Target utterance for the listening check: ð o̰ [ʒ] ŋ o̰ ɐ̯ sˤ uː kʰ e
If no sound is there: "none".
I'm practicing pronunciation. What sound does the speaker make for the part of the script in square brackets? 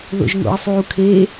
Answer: ʒ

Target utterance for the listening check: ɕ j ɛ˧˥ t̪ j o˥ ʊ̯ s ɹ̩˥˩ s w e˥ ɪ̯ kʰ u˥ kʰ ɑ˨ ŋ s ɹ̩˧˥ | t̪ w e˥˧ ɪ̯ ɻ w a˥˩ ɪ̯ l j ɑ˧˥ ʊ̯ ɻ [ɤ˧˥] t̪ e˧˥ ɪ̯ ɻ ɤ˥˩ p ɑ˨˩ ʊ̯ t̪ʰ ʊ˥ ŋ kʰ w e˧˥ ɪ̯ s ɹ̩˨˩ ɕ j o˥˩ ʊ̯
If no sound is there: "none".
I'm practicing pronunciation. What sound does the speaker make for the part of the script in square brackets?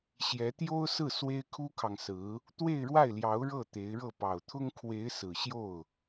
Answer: ɤ˥˩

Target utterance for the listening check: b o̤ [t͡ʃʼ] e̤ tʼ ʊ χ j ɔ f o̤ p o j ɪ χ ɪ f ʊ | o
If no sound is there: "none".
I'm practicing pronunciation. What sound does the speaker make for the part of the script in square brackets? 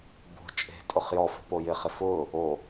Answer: t͡ʃʼ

